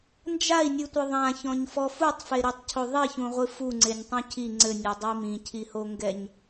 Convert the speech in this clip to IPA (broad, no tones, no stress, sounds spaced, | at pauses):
n d͡ʒ a i̯ nʲ ɨ tʷ ɘ ðˤ ã ç ɔ̃ ɲ f ɔ f u tˤ f e ɾ i tˤ cʰ o ðˤ i ç ũ ʁʷ ɨ f u ŋ͡ǀ e nʲ tˤ ũ cʰ i ŋ͡ǀ ɘ nʲ ɔ dˤ ɐ i̯ m ĩ cʰ i h o ŋ ɡ ɛ ɲ